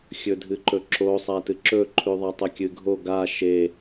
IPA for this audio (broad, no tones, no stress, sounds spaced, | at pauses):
xʲ ɵ dʱ ɨ ǃ ɵ ǁ o sˤ a t ɨ ǁ ɵ ǃʰ ʉ ðˤ a tˤ ɐ kʲ ɨ ɡʱ o ɡ a ʃ e